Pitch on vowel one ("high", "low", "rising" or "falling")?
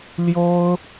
high